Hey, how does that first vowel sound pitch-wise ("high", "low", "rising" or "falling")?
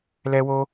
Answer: high